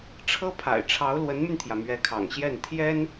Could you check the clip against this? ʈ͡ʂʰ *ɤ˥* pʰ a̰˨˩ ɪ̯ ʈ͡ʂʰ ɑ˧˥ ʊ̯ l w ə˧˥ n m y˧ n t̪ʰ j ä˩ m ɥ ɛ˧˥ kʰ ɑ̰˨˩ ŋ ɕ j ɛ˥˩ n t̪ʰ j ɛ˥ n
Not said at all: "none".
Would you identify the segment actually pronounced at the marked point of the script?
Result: ɤ˥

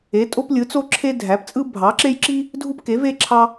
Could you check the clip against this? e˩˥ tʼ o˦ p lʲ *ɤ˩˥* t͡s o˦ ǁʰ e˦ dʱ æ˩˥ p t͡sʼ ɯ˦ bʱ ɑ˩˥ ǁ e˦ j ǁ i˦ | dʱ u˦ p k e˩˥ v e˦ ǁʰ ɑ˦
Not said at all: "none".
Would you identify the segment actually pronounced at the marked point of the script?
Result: ɯ˩˥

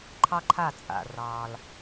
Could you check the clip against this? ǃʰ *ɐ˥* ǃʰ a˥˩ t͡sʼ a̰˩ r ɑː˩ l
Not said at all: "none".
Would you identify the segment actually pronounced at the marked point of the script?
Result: ɑ˥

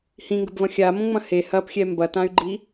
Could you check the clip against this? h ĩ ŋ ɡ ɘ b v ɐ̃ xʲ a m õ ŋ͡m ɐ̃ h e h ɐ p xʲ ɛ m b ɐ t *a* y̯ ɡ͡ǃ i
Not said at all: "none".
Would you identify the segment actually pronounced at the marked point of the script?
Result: ã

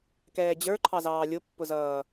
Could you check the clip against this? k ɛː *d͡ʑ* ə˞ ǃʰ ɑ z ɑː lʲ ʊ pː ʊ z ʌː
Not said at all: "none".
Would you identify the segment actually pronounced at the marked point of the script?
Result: d͡ʑ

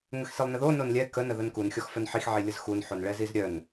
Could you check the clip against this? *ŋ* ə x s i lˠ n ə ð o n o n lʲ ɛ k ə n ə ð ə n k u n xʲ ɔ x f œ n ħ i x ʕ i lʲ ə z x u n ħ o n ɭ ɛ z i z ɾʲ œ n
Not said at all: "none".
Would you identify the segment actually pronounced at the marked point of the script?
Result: ŋ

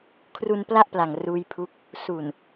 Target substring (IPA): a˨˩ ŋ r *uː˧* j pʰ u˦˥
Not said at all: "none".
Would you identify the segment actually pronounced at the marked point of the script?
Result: uː˧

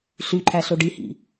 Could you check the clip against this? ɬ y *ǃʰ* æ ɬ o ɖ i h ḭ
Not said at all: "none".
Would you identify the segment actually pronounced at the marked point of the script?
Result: ǃʰ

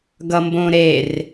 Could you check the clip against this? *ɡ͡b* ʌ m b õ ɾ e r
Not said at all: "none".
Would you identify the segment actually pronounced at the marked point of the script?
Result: ɡ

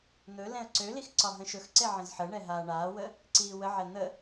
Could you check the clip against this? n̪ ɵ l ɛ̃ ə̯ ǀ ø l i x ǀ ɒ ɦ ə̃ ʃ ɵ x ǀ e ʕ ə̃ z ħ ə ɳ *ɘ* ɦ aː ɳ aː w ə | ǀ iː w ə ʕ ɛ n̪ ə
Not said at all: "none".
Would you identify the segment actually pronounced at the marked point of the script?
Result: ɛ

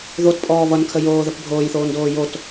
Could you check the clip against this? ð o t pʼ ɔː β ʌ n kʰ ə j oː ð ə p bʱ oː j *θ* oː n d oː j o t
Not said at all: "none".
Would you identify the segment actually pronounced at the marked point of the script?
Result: θ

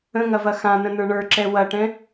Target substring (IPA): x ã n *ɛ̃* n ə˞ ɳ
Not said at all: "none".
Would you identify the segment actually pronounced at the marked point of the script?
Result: ə̃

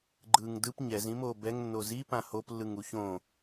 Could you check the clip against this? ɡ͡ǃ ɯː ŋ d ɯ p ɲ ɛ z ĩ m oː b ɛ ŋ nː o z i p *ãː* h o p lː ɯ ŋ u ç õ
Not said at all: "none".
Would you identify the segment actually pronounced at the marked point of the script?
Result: ã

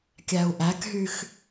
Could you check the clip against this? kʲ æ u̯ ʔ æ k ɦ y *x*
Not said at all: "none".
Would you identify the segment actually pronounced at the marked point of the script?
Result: x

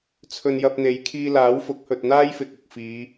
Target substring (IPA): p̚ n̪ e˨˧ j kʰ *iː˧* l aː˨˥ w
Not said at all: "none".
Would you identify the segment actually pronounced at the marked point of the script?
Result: iː˧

